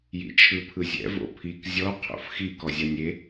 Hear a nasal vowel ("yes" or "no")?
no